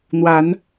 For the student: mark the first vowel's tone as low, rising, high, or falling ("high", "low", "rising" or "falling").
rising